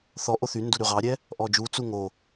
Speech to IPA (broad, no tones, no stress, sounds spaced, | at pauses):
θ ɔ ʔ o θ y n d u ɾ y ʁ ɑ ɾʲ ɛ | ʔ ɔ d͡ʒ u t͡s u ŋ o